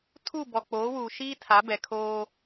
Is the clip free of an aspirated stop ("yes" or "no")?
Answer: no